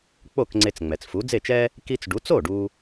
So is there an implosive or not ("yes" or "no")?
no